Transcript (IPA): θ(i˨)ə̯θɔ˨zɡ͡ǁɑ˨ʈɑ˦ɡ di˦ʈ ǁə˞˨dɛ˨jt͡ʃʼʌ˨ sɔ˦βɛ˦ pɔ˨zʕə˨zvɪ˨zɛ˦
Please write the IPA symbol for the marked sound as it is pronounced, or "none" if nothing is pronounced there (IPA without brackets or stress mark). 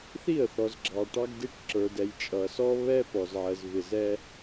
i˥˩